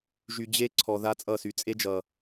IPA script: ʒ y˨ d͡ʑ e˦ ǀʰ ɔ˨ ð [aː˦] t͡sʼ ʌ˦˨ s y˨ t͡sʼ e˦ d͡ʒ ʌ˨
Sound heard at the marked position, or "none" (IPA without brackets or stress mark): a˦